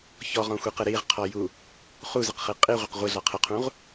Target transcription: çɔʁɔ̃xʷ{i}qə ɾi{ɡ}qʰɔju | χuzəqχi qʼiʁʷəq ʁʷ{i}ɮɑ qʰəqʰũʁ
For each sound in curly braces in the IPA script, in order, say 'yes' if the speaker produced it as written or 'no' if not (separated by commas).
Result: yes, no, yes